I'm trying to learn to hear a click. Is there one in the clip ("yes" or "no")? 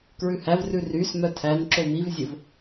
yes